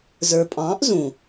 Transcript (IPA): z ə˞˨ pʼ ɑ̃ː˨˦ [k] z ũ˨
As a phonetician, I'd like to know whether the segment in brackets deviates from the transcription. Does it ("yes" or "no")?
yes